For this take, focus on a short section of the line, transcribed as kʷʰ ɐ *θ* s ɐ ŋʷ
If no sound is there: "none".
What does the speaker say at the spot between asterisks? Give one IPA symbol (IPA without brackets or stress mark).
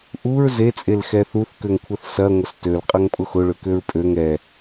θ